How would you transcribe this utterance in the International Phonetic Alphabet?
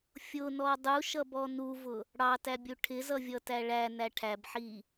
fʲ ʊ n ɔ dˤ u ʃ ʌ b ɔ n u v ʊ | ɽ ɑ t æ bʲ u ʈʰ ɪ z ʌ vʲ ʌ t æ ɭ æ n æ ʈʰ æ b ħ i

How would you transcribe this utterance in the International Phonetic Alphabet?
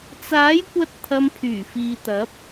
t͡s aː˨˥ j kʷ ɐ˧ t̚ t̪ʰ ɐ˧ m pʰ yː˨˩ f iː˨ t̪ ɐ˨˥ p̚

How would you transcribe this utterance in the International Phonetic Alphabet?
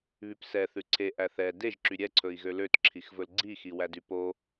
β y p s ɛ θ ʉ ǀʰ e ʔ æ θ ɛ d e ʒ ǁ y ɾʲ ɛ ǀʰ ɵ i̯ ɣ ø l ø t ǁʰ i x v ɵ l ɡ͡ǀ i x i w æ d y p o

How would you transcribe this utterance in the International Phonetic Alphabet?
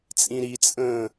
t͡sʼ ĩ ɾ i t͡sʼ ə̃ː

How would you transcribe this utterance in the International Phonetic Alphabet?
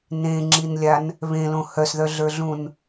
n ẽ ŋ͡ǁ i n lʲ a n | β ẽ l õ h œ s ð œ ɮ ə˞ ɮ ũ n

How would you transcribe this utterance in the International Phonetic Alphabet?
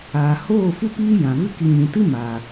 aː˨ h oː˦˨ f u˦ p iː˦ j ã˨ v ɨ˦ k i˧ ɲ ĩ˨ t ɨ˦ m aː˨

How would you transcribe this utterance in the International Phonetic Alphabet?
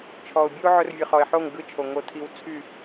t͡ʃʰ ɔ˨ ʊ̯ bʲ ɵ˦ ʊ̯ ʕ ɵ˧ r vʲ ɯ˨ χ ɔ˨ ɪ̯ ħ o˦˨ ŋ ɡ ɯ˦˨ t͡ʃʰ o˨ ŋ o˦ tʰ i˦ w t͡sʰ y˦˨

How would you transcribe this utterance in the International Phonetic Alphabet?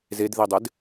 z e d ð i dˤ ɪ d

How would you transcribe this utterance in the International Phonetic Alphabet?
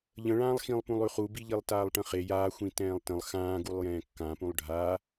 ʎ ə̃ ɭ ãː lˠ x ĩ lˠ p ũ lˠ ʉ χ u b i ʎ i lˠ t aː lˠ ʈ ə̃ χ e j aː xʷ ĩ t ɛ̃ː lˠ t ə̃ lˠ x ãː ɡ u lˠ j ɛ̃ː kː ã p ũ lˠ ɖʱ a

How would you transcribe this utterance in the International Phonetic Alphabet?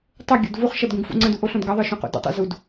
tˤ ə ɡʲ o̰ d v u χ ʃ ʌ d ɡ ũ ɡ f ṵ ŋ͡ǀ ə̃ d u ʔ o ɬ õ d ɡ ʌ ðˤ ə˞ ʃ ũ q ṵ d ṵ tˤ ṵ z u d

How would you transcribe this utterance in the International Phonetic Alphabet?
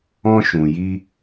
ɔ̃˧ ʃ ũ˨ j i˧

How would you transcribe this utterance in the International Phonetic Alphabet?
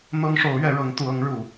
n̪ ɤ˥ ŋ ʂ o˧˥ ʊ̯ ɥ ɛ˧˥ ɻ ɤ˧˥ ŋ t̪ u˧˥ ɤ˧˥ ŋ ɻ u˨˩˦

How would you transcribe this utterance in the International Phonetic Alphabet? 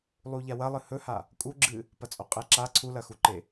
lˠ u ʎ a w ɐ lˠ ɨ h ɵ h a | kʼ u ɡ͡ǁ ɨ | p ɐ t͡sʼ o qʼ e ǁ a ǀʰ u l ɐ x u ǃ e

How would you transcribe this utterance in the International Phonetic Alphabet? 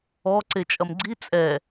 ɔ ǀ e t͡ʃʼ ɐ m ɡ͡ǀ i t͡sʼ ɛ

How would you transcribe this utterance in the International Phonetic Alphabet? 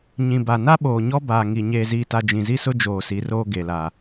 ɲ ĩ˨ b a˨ n a˦ ɓ oː˨ ɲ ɔ˦ b aː˨ ŋ i˨ ɲ eː˨ z iː˨ t a˨ d͡ʒ ĩ˨ z i˦ s ʊ˦ d͡ʒ oː˨ s i˨˦ r oː˦ ɡ e˨ l a˨

